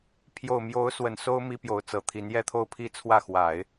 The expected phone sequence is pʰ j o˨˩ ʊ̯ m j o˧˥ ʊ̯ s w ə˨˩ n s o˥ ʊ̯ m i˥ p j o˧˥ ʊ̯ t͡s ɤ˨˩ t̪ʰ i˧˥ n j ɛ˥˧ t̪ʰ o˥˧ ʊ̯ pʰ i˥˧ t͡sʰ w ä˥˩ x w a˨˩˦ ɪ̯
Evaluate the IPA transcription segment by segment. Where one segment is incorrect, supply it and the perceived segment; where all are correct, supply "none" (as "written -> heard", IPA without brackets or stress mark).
none